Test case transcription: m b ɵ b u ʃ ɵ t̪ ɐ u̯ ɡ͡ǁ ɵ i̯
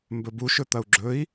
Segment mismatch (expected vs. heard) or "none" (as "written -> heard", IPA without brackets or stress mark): none